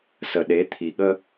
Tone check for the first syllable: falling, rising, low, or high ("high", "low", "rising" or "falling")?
low